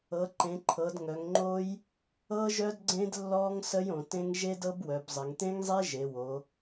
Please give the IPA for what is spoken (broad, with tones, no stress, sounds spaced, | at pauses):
ɤ˩˧ ǃ ẽ˩˧ ǃʰ ɤ˩˧ d ŋ œ˩˧ ŋ ŋ͡ǃ o˦˥ j | ɤ˦˥ ʒ œ˦˥ d ɡ͡ǀ ẽ˦˥ d lː ɔ˦˥ ŋ s ə˦˥ j õ˩˧ t ẽ˦˥ ŋ ʒ e˦˥ d ɤ˦˥ b w œ˩˧ b zˤ ɘ˩˧ ŋ t ẽ˦˥ ŋ zˤ e˦˥ ʒ e˩˧ w o˩˧